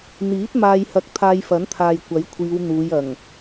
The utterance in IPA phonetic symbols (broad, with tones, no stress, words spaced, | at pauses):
n̪iː˨˥t̚ maː˧jhɐ˧k̚ t̪ʰaː˧jfɐ˨˥nt̪ʰaː˨j kʷɐ˨˥jkʷʰiː˨˧w n̪uː˨˧j ɐ˨˩ŋ